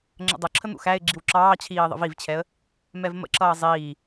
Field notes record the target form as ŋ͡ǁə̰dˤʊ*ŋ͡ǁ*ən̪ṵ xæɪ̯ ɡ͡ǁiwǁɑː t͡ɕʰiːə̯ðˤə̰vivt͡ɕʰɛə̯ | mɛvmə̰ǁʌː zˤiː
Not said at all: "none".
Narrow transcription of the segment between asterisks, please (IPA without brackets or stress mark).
ǁʰ